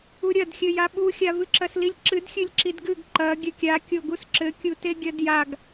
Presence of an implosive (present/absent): present